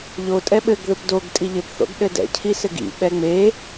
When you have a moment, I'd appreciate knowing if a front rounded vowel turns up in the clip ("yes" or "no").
no